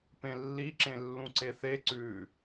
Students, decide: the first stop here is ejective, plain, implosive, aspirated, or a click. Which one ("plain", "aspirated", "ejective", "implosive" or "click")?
plain